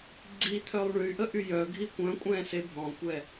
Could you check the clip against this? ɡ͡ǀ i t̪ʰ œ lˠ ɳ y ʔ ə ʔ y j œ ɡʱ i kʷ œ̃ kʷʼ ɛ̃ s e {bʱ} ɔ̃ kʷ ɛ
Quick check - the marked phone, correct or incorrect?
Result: correct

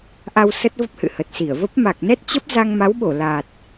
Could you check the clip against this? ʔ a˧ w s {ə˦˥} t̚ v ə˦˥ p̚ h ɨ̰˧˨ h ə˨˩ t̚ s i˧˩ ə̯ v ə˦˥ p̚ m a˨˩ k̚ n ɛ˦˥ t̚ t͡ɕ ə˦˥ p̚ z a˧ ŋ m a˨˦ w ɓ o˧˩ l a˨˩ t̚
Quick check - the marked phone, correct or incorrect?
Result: correct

